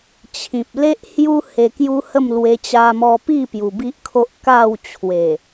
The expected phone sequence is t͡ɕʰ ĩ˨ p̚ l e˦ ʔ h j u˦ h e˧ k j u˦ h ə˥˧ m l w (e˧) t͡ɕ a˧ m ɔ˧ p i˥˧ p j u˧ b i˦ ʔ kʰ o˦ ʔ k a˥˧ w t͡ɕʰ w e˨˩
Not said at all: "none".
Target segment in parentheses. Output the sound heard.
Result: e˧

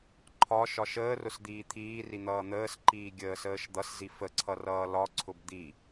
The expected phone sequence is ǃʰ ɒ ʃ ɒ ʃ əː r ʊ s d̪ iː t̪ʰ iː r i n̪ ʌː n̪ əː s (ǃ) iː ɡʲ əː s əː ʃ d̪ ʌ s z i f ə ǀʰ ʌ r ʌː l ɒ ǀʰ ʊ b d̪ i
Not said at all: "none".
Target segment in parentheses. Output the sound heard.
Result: ǃ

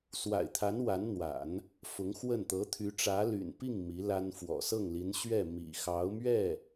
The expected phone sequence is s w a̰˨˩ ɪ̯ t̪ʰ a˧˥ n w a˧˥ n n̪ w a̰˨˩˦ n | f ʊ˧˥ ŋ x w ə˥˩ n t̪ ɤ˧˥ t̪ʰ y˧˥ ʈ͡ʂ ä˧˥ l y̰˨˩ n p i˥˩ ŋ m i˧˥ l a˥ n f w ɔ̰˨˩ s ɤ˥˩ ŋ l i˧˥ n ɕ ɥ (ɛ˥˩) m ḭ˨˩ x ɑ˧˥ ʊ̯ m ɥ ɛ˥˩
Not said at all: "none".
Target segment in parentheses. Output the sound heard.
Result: ɛ˥˩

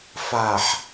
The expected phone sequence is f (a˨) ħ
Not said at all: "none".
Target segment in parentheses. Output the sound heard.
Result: a˨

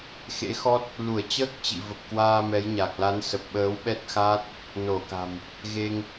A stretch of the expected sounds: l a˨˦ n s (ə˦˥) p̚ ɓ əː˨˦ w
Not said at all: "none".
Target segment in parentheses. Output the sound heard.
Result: ə˨˩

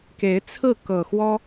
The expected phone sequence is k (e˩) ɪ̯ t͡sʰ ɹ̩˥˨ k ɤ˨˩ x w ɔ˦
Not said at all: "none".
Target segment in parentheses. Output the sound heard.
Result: e˨˦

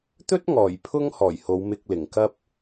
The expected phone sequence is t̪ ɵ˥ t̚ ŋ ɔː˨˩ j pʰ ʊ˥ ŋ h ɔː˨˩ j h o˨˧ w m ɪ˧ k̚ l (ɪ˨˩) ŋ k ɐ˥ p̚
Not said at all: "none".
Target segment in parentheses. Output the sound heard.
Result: ɪ˨˩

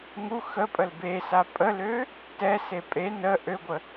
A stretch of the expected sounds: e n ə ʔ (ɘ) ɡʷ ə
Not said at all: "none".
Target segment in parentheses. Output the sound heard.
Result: ø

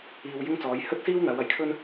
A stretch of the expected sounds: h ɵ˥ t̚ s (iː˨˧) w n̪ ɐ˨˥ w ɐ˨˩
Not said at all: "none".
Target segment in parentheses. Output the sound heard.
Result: iː˥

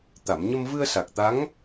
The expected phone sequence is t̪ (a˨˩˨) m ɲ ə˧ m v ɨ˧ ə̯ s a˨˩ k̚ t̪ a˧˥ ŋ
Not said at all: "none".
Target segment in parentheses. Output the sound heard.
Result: a˨˩˨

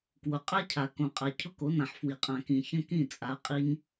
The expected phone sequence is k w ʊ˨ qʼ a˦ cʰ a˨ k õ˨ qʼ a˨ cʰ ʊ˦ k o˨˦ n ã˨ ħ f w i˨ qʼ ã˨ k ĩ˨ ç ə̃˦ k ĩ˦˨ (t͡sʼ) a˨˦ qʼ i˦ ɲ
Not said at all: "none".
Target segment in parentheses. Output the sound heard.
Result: t͡sʼ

